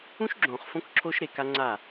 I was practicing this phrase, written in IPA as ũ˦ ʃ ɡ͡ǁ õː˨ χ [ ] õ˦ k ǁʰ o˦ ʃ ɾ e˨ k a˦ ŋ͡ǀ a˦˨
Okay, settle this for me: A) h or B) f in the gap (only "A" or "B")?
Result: B